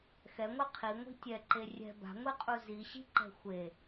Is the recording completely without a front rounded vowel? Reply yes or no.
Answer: yes